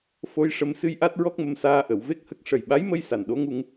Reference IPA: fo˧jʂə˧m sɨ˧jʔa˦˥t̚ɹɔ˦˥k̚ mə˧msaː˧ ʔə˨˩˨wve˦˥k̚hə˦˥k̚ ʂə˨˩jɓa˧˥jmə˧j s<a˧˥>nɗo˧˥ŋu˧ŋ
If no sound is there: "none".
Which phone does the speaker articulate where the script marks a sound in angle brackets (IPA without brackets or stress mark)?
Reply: a˨˩